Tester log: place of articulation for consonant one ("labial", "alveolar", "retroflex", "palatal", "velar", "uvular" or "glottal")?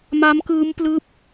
labial